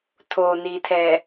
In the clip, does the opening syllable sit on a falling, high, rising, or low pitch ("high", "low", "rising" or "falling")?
low